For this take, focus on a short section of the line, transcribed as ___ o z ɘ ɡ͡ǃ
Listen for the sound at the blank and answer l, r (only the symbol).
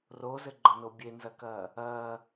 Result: r